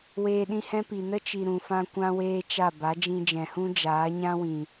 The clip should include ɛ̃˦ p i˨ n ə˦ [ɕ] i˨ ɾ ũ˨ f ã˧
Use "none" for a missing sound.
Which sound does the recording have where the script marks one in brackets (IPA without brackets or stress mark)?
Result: t͡ʃ